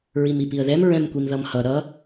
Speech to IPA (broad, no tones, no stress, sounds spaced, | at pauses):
ɹ i m i p i ə̯ ð ɛ m ɹ ɛ̃ m kʷ i m ð ʌ m h ʌ ɾ ʌ